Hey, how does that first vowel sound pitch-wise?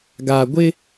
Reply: low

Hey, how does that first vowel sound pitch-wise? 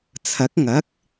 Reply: rising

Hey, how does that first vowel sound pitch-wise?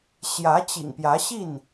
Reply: rising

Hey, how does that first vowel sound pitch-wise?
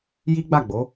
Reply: high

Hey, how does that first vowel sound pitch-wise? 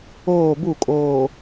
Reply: falling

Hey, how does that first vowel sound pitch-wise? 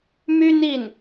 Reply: high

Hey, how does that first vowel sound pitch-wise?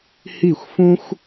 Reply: falling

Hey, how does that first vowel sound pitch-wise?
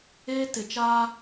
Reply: high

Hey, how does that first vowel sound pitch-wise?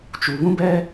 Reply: low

